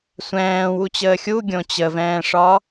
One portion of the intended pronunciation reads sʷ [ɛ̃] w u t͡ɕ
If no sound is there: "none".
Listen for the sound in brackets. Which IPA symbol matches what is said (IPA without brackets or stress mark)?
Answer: ɛ̃ː